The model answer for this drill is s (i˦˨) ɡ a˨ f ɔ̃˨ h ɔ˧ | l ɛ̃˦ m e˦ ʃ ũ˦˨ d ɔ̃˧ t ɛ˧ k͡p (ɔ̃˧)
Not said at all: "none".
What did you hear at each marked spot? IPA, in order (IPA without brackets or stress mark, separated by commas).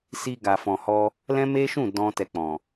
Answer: i˧, ɔ̃˨